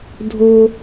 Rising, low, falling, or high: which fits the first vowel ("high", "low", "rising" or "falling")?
high